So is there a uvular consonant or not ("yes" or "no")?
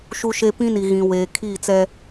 no